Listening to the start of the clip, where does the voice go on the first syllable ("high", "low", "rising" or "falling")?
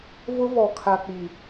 high